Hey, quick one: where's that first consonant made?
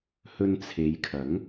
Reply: throat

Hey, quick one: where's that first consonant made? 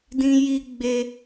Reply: tongue tip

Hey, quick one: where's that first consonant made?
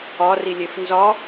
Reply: tongue tip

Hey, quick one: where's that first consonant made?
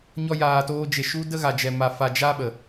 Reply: palate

